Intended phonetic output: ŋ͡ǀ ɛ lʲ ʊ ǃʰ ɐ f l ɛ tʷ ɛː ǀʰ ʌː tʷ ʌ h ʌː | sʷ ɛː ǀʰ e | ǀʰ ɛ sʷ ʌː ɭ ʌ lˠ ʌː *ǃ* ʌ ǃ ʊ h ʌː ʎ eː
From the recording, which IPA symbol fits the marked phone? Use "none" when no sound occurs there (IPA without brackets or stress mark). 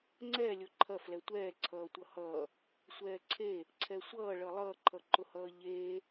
ǃʰ